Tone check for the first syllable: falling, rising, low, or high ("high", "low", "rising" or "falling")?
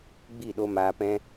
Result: falling